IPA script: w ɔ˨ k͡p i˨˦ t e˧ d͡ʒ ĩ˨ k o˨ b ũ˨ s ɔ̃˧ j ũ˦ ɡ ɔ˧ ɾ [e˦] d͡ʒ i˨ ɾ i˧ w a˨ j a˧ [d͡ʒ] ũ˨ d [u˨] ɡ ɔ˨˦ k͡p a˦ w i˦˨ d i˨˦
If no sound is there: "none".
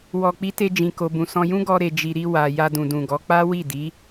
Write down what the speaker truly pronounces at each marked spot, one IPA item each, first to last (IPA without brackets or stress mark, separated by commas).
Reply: e˨, d, ũ˨